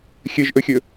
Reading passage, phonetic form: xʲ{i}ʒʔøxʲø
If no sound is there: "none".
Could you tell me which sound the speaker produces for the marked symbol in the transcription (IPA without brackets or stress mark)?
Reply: e